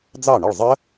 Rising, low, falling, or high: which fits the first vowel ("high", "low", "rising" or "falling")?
falling